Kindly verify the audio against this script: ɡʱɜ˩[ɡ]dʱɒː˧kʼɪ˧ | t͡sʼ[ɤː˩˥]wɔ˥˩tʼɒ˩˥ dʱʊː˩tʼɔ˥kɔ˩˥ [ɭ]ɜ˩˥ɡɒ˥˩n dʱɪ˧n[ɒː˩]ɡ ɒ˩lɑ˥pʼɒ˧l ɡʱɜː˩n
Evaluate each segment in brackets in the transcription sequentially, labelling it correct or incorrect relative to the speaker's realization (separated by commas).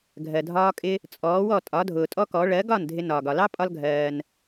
incorrect, incorrect, correct, correct